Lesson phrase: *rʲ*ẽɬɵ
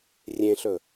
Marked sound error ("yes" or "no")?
no